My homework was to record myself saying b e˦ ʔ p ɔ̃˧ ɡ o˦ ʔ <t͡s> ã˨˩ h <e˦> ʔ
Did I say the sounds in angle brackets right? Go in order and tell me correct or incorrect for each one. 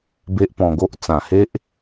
correct, correct

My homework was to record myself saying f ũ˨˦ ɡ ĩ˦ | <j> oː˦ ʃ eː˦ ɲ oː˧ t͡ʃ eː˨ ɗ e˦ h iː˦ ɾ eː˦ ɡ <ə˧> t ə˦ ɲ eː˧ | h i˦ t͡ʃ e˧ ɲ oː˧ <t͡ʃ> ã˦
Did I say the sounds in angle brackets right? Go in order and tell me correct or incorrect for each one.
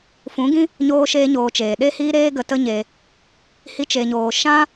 incorrect: ɲ, correct, incorrect: ʃ

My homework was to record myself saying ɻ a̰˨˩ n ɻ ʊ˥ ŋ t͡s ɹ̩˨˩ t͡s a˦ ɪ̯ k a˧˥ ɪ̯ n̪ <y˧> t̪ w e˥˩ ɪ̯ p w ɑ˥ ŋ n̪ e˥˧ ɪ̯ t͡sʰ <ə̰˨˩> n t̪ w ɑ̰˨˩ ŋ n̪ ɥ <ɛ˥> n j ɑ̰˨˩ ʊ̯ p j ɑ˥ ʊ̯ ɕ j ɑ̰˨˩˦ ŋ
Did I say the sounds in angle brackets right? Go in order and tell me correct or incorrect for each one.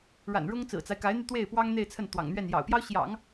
correct, incorrect: ə˥˩, incorrect: ɛ˥˩

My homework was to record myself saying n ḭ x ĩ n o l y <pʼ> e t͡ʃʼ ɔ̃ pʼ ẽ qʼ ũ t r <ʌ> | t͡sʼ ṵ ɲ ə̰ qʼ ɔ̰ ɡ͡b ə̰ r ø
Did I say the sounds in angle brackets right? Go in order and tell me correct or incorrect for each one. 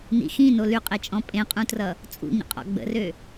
incorrect: qʼ, correct

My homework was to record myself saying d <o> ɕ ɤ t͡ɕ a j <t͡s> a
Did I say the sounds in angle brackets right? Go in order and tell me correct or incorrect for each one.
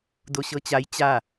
correct, incorrect: t͡ɕ

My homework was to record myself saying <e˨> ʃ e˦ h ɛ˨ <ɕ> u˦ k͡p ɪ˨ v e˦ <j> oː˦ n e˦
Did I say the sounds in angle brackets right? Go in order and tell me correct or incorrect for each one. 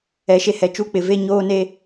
incorrect: ɛ˨, incorrect: t͡ʃ, incorrect: ɲ

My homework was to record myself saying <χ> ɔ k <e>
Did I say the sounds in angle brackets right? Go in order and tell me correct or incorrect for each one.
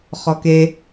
correct, correct

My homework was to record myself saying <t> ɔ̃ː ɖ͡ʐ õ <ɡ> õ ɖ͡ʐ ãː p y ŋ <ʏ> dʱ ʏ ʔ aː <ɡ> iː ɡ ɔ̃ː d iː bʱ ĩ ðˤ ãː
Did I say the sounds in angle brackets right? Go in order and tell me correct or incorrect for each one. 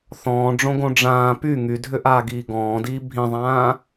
incorrect: θ, correct, incorrect: y, correct

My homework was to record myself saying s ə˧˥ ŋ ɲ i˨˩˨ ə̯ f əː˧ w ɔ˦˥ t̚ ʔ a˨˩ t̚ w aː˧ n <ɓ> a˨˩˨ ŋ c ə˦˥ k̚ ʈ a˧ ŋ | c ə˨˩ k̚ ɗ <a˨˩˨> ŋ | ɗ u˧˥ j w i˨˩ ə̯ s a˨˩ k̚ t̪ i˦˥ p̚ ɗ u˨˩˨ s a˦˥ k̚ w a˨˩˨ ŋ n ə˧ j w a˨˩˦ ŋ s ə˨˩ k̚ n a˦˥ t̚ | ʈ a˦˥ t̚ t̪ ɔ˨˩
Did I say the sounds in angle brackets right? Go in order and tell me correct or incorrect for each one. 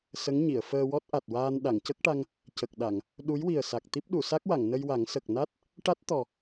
incorrect: ɗ, correct

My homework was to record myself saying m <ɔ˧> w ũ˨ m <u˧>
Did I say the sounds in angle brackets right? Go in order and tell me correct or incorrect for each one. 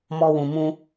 correct, incorrect: ũ˧

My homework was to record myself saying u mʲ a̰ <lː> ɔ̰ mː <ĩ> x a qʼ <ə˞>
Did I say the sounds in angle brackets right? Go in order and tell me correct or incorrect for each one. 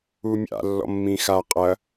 correct, correct, incorrect: ɐ

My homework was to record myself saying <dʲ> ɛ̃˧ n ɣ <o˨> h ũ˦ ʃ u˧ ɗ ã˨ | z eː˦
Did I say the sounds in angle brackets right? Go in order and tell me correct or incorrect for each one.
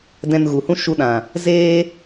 incorrect: d, incorrect: u˨

